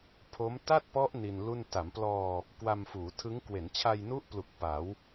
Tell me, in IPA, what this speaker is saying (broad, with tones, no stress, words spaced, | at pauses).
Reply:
pʰo˦˥m ta˥˩t̚pɔ˦˥ʔ ni˧nlu˥˩n ta˩˦mplɔː˧ | kwa˧mfuː˩˦tʰɯ˦˥ŋ kwe˩˦nt͡ɕʰa˧jnu˦˥ʔplu˨˩k̚ pa˩˦w